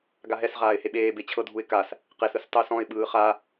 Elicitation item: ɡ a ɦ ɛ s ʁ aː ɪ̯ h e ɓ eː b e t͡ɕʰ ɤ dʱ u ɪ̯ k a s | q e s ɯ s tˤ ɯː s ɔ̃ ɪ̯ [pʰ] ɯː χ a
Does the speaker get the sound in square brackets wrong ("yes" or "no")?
yes